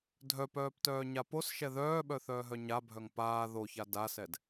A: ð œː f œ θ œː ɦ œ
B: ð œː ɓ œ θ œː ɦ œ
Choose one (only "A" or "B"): B